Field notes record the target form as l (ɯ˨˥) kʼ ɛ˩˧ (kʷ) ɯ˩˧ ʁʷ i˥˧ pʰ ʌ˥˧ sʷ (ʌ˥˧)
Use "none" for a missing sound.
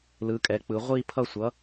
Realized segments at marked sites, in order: ɯ˩˧, k͡p, ʌ˨˥

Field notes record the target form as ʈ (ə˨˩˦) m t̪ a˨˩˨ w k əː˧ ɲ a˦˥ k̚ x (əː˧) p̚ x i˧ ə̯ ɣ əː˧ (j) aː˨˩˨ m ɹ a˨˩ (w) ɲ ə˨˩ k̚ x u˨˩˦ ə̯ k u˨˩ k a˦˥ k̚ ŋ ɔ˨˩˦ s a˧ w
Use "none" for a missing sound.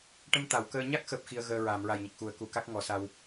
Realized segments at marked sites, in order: ə˧, əː˦˥, ɹ, j

